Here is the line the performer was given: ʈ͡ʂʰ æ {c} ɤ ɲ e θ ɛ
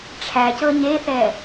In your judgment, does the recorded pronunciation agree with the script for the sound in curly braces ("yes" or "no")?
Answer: yes